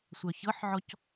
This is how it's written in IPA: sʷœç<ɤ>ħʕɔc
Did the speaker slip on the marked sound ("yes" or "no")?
no